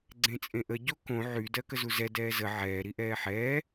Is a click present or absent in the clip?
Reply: present